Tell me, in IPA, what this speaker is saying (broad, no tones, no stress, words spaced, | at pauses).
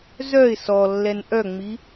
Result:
zœɪ̯ sɔlːɛn ʔœŋ͡mi